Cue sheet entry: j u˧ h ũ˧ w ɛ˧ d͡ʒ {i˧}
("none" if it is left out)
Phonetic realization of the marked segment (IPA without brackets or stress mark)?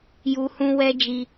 i˧